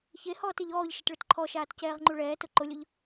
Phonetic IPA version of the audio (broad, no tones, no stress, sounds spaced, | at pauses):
ç e h ɔː t e ʎ ɔː ʎ ʃ ɪ t ɭ ʊ t ǃʰ ɔ ʃ aː t c ɛː ʁ ŋ͡ǃ u ɭ ɛː t ʊ ǃ ʊ lʲ ʊ ʎ